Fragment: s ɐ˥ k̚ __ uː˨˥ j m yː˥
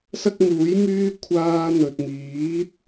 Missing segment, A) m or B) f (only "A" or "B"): A